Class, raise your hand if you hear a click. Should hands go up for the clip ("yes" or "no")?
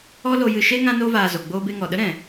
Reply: no